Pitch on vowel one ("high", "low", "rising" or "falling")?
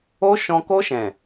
high